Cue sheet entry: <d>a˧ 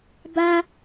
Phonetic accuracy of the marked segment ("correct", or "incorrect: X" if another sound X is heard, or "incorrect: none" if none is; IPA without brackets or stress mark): incorrect: b